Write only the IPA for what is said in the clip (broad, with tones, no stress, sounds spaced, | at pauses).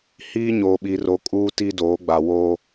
h iː˦ ɲ oː˨ ɓ i˨ r o˨ kʼ uː˦ t i˦ d oː˨˦ ɡ͡b a˨ w o˦